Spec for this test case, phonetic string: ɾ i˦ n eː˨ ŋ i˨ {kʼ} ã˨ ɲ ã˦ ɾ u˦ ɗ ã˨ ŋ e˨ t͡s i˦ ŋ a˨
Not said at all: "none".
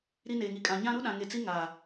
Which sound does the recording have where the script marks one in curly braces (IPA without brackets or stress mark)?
kʼ